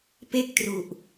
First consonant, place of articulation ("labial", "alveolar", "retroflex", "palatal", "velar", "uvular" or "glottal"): labial